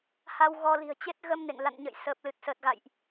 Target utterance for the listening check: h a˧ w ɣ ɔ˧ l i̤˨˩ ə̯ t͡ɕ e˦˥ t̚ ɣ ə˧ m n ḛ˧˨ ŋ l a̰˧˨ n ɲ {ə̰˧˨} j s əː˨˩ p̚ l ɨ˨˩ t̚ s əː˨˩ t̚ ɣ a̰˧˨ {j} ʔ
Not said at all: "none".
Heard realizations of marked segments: ə̰˧˨, j

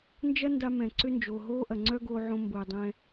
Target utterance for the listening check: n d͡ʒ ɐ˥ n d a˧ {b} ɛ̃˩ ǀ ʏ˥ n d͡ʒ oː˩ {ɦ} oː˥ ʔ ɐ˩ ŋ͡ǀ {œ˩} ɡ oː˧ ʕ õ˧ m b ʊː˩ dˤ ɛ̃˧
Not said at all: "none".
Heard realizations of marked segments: m, ɦ, œ˥

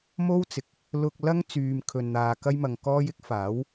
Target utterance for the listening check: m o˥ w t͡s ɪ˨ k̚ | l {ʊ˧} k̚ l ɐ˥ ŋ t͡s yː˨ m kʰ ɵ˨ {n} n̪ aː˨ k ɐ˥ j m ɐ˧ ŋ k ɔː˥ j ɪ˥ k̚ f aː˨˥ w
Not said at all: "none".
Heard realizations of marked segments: ʊ˧, n

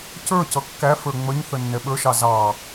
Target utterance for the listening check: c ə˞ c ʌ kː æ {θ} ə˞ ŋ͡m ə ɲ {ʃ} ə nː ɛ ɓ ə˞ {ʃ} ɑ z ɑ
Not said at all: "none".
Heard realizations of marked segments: f, θ, ʃ

